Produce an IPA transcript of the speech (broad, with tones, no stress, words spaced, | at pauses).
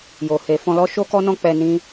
jo˨he˨fɔ̃˧lɔ˦ ʃo˦kɔ˦nɔ̃˦ k͡pɛ˧nĩ˦